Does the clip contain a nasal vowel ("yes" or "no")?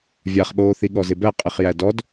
no